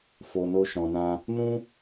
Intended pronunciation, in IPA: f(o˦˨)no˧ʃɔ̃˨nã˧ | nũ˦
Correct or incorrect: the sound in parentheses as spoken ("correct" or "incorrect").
incorrect